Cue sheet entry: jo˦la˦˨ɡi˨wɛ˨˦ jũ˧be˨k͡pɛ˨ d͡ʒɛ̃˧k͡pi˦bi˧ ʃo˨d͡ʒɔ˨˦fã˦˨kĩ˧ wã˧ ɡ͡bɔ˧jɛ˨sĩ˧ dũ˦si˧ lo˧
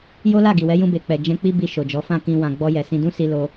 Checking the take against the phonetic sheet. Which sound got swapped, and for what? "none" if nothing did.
none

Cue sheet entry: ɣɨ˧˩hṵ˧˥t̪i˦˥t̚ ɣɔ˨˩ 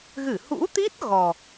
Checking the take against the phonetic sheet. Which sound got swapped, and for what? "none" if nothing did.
none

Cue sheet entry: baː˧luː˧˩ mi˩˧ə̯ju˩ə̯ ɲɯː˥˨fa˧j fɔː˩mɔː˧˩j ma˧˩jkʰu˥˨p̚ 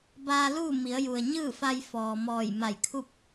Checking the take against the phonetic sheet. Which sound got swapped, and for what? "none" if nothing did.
uː˧˩ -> uː˥˨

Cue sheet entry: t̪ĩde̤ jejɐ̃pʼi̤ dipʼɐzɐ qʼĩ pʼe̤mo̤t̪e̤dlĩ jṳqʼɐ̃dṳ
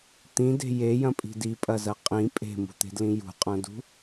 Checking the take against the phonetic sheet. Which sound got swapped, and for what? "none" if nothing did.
o̤ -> ṳ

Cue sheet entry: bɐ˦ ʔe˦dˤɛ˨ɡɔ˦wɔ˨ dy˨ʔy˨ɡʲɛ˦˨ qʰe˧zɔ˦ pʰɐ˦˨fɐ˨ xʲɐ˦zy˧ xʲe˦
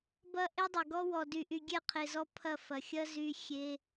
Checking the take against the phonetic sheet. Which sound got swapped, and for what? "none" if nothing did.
none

